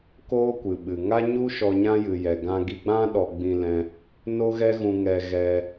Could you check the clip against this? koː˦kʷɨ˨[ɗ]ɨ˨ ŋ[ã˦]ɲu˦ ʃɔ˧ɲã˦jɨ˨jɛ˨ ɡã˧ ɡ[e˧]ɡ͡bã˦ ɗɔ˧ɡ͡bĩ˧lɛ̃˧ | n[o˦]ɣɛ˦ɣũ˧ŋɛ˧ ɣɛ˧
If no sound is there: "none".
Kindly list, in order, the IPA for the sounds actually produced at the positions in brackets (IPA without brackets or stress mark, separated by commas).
ɓ, a˦, i˧, o˦